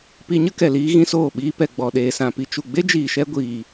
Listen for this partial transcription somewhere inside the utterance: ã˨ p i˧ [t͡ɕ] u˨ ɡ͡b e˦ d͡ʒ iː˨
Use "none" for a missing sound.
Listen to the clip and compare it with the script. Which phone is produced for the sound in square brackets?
t͡ʃ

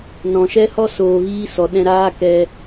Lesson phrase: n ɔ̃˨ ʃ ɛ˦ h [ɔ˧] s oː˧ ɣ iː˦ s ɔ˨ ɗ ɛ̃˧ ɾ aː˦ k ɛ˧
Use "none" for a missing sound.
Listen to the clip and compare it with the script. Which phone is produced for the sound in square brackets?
ɔ˦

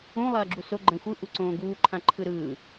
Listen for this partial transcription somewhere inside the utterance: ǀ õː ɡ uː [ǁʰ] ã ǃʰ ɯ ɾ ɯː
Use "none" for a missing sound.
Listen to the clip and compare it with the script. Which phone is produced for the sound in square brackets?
ǃʰ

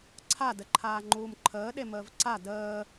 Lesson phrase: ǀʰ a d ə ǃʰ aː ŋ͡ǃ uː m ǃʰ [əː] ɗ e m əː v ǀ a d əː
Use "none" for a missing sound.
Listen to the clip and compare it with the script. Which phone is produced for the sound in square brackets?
əː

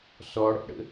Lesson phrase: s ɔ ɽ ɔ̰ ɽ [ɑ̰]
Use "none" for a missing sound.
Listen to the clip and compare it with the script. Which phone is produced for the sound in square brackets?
ə̰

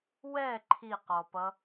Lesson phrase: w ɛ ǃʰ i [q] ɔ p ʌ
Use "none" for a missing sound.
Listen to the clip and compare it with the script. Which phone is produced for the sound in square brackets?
q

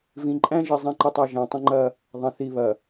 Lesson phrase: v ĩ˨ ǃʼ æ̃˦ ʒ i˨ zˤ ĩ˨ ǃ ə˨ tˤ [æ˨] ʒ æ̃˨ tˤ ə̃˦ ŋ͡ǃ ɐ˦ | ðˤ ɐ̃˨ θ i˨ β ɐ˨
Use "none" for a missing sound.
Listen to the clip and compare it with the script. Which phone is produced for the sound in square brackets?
æ˨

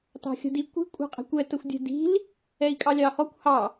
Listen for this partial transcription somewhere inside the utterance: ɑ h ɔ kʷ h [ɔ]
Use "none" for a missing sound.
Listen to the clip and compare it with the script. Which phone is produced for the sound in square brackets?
ɑ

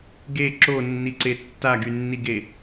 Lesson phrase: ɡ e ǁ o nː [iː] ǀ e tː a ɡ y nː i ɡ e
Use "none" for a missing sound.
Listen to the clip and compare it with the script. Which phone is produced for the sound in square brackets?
i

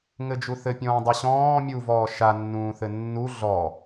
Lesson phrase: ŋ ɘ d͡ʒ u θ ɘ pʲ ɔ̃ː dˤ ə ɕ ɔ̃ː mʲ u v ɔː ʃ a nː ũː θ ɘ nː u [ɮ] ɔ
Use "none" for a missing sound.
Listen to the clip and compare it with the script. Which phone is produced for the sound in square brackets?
ɮ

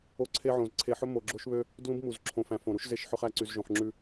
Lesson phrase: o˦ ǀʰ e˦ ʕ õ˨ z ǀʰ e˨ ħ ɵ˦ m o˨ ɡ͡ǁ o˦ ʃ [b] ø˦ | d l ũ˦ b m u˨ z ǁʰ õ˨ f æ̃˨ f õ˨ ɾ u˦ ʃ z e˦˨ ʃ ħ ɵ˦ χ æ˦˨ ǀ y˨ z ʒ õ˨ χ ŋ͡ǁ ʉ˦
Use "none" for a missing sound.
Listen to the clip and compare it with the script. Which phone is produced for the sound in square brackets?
β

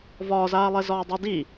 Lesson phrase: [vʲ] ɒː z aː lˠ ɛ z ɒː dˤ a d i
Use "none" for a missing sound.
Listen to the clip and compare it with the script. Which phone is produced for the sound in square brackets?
v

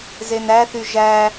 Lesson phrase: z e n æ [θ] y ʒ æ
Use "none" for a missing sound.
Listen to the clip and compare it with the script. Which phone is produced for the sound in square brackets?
θ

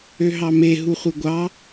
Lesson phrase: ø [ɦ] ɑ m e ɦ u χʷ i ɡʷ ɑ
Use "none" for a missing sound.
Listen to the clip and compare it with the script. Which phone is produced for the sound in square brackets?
ɦ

